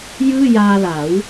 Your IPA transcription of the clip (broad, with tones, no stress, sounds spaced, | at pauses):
j ɯː˥˩ j aː˧ l a˩˦ w